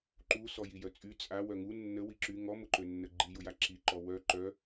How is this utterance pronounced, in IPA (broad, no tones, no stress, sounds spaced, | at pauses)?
ǃ u s ɔ j i j œ t͡sʼ y t͡sʼ a w œ ŋ u nː ə w i ǁ y ŋ ɔ m ʊ ǃ ø nː ə ɡ͡ǃ i j ʊ j a ǁ i ǃ ɔ w œ ǃ œ